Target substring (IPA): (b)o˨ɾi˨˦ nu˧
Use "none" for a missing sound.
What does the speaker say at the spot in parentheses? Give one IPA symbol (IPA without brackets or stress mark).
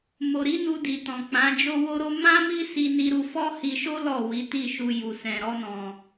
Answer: m